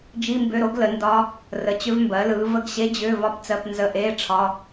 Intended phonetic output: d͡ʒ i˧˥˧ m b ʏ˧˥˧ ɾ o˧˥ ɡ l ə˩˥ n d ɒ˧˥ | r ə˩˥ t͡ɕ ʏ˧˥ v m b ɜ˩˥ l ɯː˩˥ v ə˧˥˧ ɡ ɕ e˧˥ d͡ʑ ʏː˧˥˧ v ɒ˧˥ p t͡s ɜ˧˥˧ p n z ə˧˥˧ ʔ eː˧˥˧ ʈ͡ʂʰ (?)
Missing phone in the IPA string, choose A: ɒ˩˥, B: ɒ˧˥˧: B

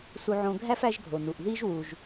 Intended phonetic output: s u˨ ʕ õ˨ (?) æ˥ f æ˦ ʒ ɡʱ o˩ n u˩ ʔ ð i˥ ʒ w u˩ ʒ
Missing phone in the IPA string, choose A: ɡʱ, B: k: A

